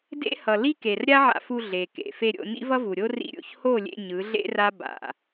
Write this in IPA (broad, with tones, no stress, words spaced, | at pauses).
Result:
dḛ˦hʌ˨li˦ ke˨rɾʲa˦ʕa̰˧fu˧ ɮe˨kḛ˨ fe˧ɾʲo̰˧ nḭ˦vʌ˦vu˨ɾʲo˦ rḭ˧ɾʲo̰˨ç ho˦˨lʲḛ˧ ɲɯ˨˦ɮḛ˦ra˦ ba̰˨